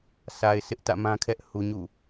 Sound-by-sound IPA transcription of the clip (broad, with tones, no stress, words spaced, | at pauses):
sʰa˨ɪ̯sʰɪ˦ʔ tä̰˦˨mã˦kʰɛ˦ʔ hu˨ɲṵ˦˨